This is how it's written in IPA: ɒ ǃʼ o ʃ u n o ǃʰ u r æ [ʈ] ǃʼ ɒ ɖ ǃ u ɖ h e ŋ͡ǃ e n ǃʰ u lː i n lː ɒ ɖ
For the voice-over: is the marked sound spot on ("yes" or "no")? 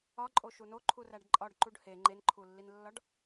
no